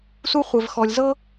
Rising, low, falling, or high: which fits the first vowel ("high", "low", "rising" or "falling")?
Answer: high